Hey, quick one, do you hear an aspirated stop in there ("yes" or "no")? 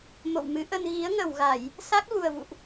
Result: no